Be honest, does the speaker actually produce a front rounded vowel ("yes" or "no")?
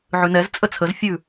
no